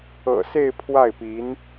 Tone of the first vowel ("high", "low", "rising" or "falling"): low